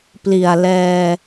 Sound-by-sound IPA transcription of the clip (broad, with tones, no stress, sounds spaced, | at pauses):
p l i˨˩ a̯ l ɛː˧